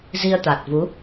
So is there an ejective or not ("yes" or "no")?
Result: no